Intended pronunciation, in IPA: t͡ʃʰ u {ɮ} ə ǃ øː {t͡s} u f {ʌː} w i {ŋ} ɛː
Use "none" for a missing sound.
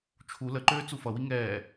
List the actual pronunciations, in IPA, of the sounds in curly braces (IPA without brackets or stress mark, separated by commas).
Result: l, t͡s, ʌ, ŋ